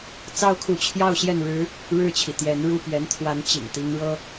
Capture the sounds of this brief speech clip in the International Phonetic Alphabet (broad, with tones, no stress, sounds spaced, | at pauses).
t͡s ɑ˥ ʊ̯ kʰ u˧˥ t͡ɕʰ j ɑ˥˧ ʊ̯ ɕ j ɛ˥˩ n ɻ ɻ̩˥ | ɻ ɻ̩˥˩ t͡ɕʰ i˩ t̪ j ɛ˧˥ n ɻ u˥˩ p ɥ ɛ˧˥ n t̪ʰ w a˧˥ n t͡ɕ ḭ˨˩ ŋ t̪ i˧˥ ŋ ɻ ɤ˥